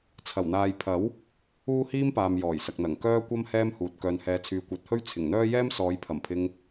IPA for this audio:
t͡sʰ ɐ˨˩ w n̪ aː˨ j pʰ ɐ˨˥ w | uː˥ h iː˥ m p aː˨ m j ɔː˨˩ j s ɐ˨ k̚ n̪ ɐ˨˩ ŋ k œː˥ kʷ ɐ˥ m h ɛː˥ m h uː˨ t̚ k œː˨ n h ɛː˨˧ t͡sʰ yː˨˧ kʷ ɐ˨˥ t̚ h ɵ˥ ɥ t͡sʰ ɪ˨˩ ŋ n̪ œː˥ j ɛː˥ m s ɔː˨˧ j pʰ ɐ˨˩ m pʰ ɪ˧ ŋ

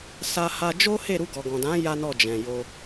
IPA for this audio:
s a˧ h a˧ d͡ʒ o˦ h e˦˨ ɾ u˧ ɡ ɔ˨ ɡ ɔ̃˨ d ã˨˦ j a˦ n ɔ˦˨ d͡ʒ ɛ̃˨ j o˧

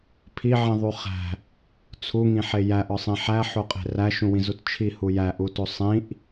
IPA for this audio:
pʰ i ʕ ĩ ðˤ u χ æ̤ | t͡sʰ u ŋ ĩ ħ e j æ ʔ ɒ sˤ ĩ ħ æ ħ o qʼ e̤ r æ ʃ ũ w ĩ z u t t͡ʃʰ i h u j æ ʔ u t o sˤ ĩ ʔ

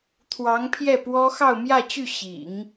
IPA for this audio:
t̪ʰ w ɑ˧˥ ŋ pʰ j ɛ˥˩ p w ɔ˥ x ɑ˥˧ ʊ̯ m j ä˥˧ t͡ɕ y˥˩ ɕ ḭ˨˩˦ ŋ

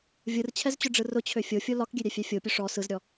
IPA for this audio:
vʲ ɯ r t͡ɕʰ ɛ z t͡ɕ ʊ ɖ͡ʐ ɯ r ʊ t͡ɕʰ ø fʲ o fʲ o l ɒ k ɡʲ ø ɾʲ ɛ fʲ ɛ fʲ o pʲ ʊ ʂ ɔ s ɯ z ɾʲ ɔ

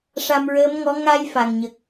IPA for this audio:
ʂ a˧ m ɹ əː˧˥ m ŋ ɔ˧˥ ŋ a˧ j f a˨˩ ŋ ɲ ə˨˩ k̚

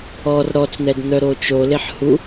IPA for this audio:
ɔ r ɾ ɔ t͡s n̪ ɛ d n̪ œ ɾ o t͡ʃ o l e ħ h u

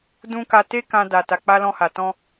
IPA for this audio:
d ũ˦ k a˧ t e˦ k ã˧ d a˨ t a˨ k͡p a˧ l ɔ̃˧ h a˨ t ɔ̃˧

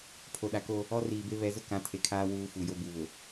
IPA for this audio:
pʰ o˨ ɗ a˨ k o˦ | ɔ˦ r iː˨ b e˦ β ɛ˨˦ z ʊ˦ k ã˨˦ tʰ e˨ kʰ aː˦ w uː˦ f u˨ j o˦ b u˨ β ʊ˨

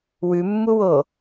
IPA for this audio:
w ʉ mː u w o

